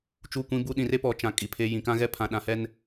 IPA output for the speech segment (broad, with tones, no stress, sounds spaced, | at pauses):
t͡ʃ u˦˨ kʷ ĩ˦ b u˦ ɗ ĩ˨ r e˦ p ɔ˨ t͡ʃ ã˨ kʼ i˨ pʰ e˦ j ĩ˨ k ã˦ ɣ ɛ˦ pʰ ã˨ ɗ ã˨ h ɛ˦ n